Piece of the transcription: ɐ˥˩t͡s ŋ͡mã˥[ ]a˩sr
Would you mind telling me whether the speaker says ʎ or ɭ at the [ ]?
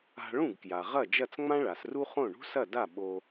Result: ɭ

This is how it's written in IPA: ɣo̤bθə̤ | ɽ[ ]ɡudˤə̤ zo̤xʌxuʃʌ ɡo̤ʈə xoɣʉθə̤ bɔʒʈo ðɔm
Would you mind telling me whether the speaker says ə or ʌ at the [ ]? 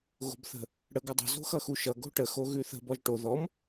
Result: ə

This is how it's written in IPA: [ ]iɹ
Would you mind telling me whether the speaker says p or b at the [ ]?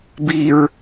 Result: b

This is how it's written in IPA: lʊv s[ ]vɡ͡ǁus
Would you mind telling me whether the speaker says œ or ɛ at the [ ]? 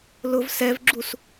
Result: ɛ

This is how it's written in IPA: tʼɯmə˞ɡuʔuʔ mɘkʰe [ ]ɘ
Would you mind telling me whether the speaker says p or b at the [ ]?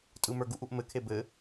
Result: b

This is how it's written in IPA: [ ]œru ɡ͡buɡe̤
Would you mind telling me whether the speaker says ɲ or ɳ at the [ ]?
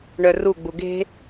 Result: ɳ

